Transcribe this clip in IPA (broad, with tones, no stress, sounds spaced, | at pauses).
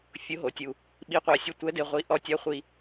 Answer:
fʲ ʊ˧˥ ɦ o˩˥ tʲ u˧ | ɓ i˧˥ qʷ a˧ sʲ ʊ˧˥ tʷ ɛ˧˥ d e˧ ʁʷ i˧˥ ʔ ɔ˧ tʲ a˧˥ χʷ i˧